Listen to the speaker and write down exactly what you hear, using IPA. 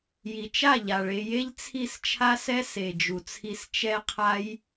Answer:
j i˨ t͡ʃ a˦˨ ʎ a˨ ɭ e˧ j e˦ ʎ t͡sʰ i˦˨ s t͡ʃʰ a˦ s ɛ˦ s e˨ d͡ʒ u˨ t͡sʰ i˧ s t͡ʃ ɛ˦ qʰ a˦ j

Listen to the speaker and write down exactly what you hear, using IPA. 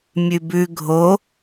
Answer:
mʲ ʉ b ʉ ɡʱ o

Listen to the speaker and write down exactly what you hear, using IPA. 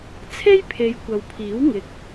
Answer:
t͡sʰ e˥ j pʰ e˨˧ j kʷ ɐ˨ w pʰ iː˨˥ w ŋ ɪ˨ k̚

